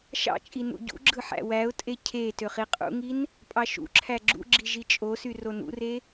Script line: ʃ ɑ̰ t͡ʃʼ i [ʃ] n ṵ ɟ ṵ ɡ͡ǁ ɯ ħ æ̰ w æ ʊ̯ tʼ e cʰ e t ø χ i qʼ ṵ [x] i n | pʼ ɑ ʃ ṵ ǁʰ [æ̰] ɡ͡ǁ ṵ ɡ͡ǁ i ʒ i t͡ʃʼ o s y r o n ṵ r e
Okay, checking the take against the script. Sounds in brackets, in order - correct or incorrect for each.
incorrect: none, incorrect: ŋ, incorrect: æ

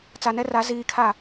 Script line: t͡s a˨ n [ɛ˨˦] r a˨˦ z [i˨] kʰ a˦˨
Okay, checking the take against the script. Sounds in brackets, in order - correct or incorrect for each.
incorrect: ɛ˦, incorrect: iː˨

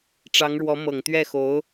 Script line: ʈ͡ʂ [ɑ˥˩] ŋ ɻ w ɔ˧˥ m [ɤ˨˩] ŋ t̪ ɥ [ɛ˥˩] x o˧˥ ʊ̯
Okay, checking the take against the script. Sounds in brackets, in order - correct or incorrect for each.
incorrect: ɑ˧˥, correct, correct

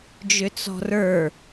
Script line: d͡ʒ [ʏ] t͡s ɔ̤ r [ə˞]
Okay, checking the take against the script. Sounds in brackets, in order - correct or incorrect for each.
correct, correct

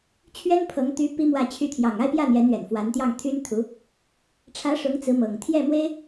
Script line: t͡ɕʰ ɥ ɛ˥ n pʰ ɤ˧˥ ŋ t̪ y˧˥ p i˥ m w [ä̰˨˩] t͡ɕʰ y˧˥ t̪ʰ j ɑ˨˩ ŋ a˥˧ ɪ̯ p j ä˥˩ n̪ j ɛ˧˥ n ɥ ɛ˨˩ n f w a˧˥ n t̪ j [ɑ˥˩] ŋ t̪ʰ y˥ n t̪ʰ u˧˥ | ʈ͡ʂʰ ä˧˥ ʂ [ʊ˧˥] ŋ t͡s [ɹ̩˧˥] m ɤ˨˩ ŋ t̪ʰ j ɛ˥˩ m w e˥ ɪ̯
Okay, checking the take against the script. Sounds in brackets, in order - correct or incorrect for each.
incorrect: ä˥˩, correct, correct, correct

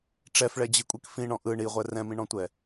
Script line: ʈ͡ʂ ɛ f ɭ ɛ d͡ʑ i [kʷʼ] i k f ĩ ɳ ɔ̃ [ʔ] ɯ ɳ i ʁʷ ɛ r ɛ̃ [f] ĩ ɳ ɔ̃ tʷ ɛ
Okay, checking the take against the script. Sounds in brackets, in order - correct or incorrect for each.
correct, correct, incorrect: m

